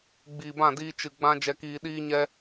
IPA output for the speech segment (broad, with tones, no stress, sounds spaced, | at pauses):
ɡ͡b iː˨ b ã˦˨ d iː˧ t͡ʃ ɨ˨ ɡ͡b ã˧ d͡ʒ ɛ˨ k iː˨ ɗ iː˧ ɲ ɛ˧